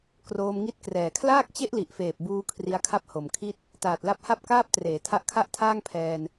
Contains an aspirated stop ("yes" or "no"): yes